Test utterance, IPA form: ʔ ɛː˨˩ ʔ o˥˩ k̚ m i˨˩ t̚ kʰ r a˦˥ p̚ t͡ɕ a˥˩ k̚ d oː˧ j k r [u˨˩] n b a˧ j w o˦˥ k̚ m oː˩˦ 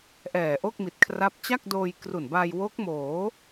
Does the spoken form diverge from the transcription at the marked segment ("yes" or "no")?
no